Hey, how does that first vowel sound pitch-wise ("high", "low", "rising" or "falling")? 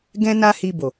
high